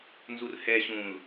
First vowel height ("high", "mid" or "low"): high